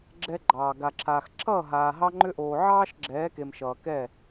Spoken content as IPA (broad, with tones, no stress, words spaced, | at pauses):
ɡ͡ǁɛ˧ɡ͡ǃɑː˨ ɡa˨ǁʰaː˨xǁʰʌː˦˨ ɦaː˨ɦɑ˧ŋ͡ǃʏ˧ʔoː˨ ʕɑː˦ʃɡ͡ǁɛː˨˦ke˨m ʃʌː˨kɛ˦˨